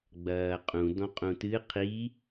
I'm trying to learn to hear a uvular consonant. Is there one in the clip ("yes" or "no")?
yes